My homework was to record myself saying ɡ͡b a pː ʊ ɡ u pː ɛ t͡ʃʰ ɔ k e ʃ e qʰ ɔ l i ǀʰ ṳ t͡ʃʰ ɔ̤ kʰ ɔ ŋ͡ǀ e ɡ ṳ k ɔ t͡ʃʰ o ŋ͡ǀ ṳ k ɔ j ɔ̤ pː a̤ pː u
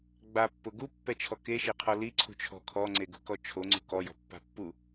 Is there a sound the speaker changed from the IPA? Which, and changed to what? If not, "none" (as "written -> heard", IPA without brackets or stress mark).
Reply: none